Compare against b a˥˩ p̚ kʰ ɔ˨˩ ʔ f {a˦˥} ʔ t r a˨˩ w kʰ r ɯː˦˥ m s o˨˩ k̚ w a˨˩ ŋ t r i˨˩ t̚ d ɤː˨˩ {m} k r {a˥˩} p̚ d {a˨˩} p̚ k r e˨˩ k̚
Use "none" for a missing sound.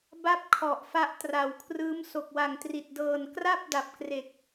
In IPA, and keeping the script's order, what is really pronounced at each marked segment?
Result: a˦˥, n, a˥˩, a˨˩

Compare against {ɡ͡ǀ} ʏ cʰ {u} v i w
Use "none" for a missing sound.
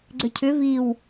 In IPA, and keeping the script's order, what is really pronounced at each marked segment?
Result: ɡ͡ǀ, ʏ

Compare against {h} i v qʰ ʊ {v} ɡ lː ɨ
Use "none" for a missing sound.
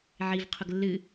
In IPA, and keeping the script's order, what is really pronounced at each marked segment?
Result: ʕ, none

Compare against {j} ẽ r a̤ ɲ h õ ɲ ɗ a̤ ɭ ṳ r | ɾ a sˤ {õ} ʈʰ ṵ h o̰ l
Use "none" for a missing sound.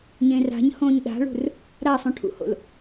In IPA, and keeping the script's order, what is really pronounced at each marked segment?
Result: ɲ, ũ

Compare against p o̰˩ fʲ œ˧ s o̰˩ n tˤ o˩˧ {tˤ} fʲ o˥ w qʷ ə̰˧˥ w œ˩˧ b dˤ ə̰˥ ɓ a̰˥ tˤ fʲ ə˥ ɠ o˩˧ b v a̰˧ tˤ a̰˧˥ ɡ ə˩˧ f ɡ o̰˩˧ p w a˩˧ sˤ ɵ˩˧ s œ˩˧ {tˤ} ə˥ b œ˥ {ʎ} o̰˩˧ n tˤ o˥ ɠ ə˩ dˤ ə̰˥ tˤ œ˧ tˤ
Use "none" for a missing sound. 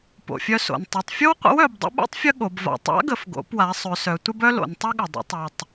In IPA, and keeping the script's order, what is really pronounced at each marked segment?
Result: tˤ, tʷ, l

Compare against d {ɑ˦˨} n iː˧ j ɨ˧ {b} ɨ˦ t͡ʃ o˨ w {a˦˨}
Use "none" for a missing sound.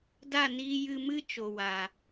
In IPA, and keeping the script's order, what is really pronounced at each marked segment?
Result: a˦˨, m, a˨

